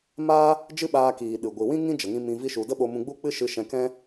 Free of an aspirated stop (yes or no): yes